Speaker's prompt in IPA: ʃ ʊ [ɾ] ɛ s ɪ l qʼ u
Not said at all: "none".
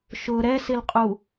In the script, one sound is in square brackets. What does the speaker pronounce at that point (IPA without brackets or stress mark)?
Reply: ɾ